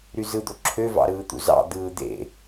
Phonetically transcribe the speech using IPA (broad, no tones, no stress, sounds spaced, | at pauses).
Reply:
ɾ y z ɯ d̪ o ǁʰ ø v ɑ̰ ɾ ɯː t̪ ṵ z ɑ̰ d̪ ɯː d̪ ḛ